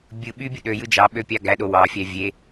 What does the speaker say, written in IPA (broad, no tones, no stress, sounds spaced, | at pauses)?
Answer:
bʲ ɯ ɓ y bʲ ɯ ɗ ø j ɯ d͡ʒ ɑ ɓ ø pʲ ɑ ɡ æ ɗ o w ɑ fʲ æ vʲ e